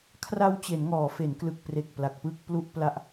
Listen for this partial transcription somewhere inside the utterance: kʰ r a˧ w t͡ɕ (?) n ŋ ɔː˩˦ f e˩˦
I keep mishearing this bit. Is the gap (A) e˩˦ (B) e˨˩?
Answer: A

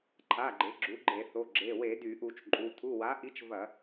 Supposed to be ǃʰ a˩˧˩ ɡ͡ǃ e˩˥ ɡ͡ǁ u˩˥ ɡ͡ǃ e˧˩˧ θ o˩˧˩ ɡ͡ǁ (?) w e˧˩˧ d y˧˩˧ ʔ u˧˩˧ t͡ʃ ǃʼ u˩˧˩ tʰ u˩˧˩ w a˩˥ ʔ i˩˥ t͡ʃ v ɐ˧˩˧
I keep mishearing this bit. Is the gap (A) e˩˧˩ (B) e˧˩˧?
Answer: A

